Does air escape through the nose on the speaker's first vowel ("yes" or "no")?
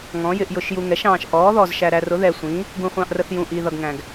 yes